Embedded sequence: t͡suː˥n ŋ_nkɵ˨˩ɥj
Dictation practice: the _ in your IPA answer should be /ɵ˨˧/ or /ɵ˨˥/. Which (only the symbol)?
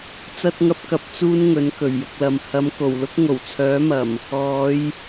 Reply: ɵ˨˥